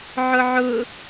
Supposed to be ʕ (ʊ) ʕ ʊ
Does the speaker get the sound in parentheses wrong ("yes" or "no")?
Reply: no